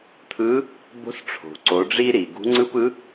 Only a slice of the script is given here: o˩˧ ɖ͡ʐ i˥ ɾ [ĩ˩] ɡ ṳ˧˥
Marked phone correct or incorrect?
incorrect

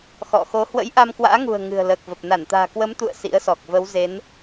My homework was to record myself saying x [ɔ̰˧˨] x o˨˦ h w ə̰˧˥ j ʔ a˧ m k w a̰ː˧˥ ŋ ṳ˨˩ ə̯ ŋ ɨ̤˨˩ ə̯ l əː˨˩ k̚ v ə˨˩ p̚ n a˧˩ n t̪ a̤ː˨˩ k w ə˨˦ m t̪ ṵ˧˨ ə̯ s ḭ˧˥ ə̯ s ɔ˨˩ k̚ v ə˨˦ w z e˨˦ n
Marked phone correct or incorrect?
correct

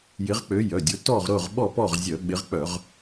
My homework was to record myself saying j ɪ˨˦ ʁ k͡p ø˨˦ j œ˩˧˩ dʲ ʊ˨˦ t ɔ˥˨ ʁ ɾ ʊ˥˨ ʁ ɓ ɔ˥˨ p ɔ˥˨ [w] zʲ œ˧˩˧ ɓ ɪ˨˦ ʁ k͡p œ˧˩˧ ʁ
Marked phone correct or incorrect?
incorrect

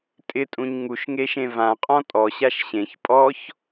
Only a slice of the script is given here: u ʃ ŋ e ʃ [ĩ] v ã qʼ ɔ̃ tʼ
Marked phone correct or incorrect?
incorrect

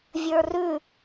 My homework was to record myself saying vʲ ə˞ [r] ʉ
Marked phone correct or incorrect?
correct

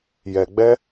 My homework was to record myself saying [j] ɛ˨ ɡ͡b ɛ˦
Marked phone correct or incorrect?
correct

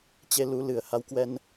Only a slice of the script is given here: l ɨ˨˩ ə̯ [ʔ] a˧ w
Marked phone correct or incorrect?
incorrect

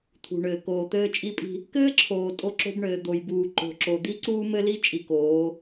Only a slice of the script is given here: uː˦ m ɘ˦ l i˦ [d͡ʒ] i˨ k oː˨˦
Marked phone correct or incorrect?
incorrect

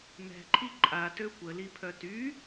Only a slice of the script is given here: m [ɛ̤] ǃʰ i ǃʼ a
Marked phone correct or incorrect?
correct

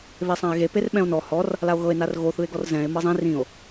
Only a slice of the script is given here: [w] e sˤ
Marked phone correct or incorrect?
incorrect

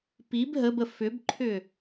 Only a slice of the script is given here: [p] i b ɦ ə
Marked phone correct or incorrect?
correct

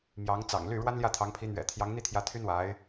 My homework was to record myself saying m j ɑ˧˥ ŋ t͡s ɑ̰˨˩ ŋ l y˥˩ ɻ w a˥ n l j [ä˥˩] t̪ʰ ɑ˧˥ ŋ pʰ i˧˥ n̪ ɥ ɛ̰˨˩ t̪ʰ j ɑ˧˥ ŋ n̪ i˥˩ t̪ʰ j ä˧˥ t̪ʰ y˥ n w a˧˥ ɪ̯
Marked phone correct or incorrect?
correct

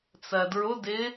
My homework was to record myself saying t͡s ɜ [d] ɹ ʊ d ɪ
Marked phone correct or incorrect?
correct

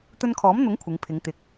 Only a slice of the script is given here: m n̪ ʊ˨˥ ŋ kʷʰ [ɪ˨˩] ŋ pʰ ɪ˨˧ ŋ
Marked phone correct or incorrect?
incorrect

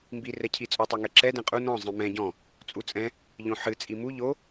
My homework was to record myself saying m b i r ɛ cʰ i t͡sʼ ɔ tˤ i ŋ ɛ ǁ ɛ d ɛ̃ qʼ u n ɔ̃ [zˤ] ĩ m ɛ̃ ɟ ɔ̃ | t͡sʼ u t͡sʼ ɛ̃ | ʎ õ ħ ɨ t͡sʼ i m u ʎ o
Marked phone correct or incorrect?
correct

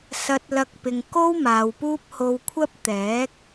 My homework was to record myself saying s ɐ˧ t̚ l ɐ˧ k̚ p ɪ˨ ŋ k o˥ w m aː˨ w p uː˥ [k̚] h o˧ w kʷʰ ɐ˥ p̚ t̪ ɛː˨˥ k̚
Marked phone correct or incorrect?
incorrect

